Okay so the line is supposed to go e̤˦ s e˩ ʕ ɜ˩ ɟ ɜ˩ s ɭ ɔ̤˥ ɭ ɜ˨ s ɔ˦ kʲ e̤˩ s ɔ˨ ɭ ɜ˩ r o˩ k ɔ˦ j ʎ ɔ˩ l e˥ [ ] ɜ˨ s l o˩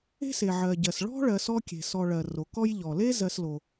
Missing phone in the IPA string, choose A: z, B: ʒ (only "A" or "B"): A